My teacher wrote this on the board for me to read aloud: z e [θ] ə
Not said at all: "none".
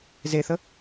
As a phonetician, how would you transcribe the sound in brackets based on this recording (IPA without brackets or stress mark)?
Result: θ